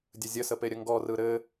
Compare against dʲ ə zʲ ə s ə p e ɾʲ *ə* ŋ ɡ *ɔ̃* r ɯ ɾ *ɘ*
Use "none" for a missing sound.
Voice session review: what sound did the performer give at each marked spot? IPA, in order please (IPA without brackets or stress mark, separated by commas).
ə, ɔ, ɘ